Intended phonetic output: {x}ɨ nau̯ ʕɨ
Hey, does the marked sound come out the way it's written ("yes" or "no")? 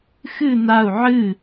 yes